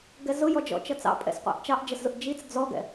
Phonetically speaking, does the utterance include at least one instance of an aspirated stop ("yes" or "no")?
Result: no